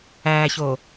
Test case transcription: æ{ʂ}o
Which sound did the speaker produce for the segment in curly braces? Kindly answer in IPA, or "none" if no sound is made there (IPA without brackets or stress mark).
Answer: ç